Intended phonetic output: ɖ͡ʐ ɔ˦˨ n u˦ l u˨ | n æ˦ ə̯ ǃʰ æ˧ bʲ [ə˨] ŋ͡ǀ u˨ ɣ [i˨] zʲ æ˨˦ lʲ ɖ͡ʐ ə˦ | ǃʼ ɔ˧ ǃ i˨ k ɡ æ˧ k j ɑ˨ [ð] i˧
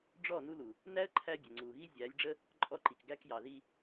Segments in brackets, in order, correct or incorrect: correct, incorrect: i˦, correct

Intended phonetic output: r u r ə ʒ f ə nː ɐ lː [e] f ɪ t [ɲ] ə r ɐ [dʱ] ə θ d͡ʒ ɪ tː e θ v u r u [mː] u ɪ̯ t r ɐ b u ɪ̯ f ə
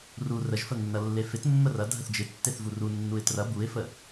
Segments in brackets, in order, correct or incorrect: correct, incorrect: mː, correct, incorrect: nː

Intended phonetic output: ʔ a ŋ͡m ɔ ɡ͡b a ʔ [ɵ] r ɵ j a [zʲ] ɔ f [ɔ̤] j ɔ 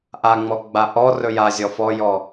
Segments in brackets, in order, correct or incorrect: incorrect: ɔ, correct, incorrect: ɔ

